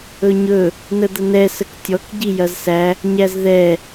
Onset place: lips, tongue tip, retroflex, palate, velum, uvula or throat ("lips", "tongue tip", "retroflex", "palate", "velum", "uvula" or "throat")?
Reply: palate